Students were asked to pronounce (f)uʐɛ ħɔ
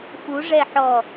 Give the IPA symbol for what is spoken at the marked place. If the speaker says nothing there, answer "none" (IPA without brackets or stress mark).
f